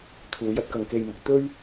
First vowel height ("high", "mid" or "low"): high